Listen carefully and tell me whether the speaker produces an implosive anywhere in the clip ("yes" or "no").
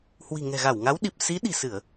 yes